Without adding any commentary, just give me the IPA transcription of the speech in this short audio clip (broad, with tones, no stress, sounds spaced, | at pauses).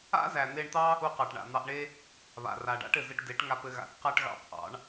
a̰˦ z æ˨ n̪ e˧ ɳ t̪ ɑ˦ | u˧ q ɑ˨ ʈ ɳ a̰˨ n̪ ɑ˧ ʔ ɳ e˦ | β a̰˨ r a˨ ɖ a̰˦ ʈ ɘ˨ z ɘ˧ ʈ d e˨˦ ʈ ŋ a˧ p ɘ˧ ɣ a̰˨˦ θ q a˦ ʈ ɣ ɑ̰˦˨ p ʔ ɑ̰˨˦ ɳ